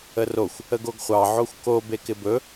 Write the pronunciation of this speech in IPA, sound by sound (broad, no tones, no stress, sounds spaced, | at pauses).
ə r o xʷ | ə ɡ o ɡ χʷ ɑ ʕ o xʷ k o b e k ɪ b ɵ